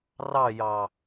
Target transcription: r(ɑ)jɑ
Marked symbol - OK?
yes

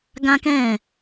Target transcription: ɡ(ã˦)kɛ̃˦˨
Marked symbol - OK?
yes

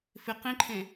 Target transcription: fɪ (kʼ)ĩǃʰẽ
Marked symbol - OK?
no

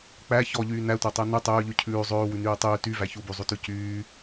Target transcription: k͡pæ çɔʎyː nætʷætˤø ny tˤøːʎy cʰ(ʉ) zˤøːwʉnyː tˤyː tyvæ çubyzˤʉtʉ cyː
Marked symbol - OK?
no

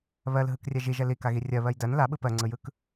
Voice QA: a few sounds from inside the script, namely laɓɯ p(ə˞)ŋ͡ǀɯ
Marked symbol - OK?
no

